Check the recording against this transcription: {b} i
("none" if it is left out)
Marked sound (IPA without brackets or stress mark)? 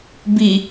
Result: b